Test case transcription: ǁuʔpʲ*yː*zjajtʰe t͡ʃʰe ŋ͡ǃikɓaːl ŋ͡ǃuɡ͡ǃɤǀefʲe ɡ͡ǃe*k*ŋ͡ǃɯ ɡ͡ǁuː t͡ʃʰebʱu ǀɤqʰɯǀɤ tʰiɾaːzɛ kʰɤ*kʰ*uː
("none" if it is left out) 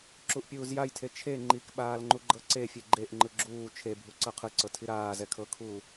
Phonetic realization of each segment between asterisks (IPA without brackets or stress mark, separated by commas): uː, ʔ, kʰ